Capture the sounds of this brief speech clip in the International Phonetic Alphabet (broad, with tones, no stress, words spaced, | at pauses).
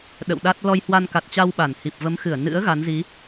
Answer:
ɗə̰˧˨wɗa˦˥t̚ lɔ˧jhwa˧nka˨˩t̚t͡ɕa˧w ɓa˧˩n hi˨˩p̚və˨˦mxɨ˧˩ə̯ nɨ̰˧˥ə̯ ɣa˨˦nzi˨˦